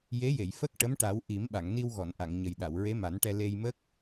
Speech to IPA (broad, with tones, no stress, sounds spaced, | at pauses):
j e˧˥ j e˨˩˨ j f ə˦˥ k̚ ʈ ə˧˥ m ʈ a˨˩˦ w ʔ i˨˩˦ m ɓ a˨˩˨ ŋ n i˧ w ɣ ɔ˨˩˨ n ʔ a˨˩˨ ŋ ɲ ə˨˩ j ɗ a˨˩˨ w ɹ e˧˥ m a˨˩˦ n ʈ ɛ˧ l e˧ j m ə˦˥ k̚